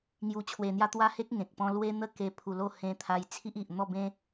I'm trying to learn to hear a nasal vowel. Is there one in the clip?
yes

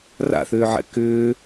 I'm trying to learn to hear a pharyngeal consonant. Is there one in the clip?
yes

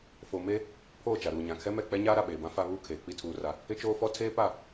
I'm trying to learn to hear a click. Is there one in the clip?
no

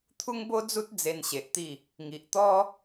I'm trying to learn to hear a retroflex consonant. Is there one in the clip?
no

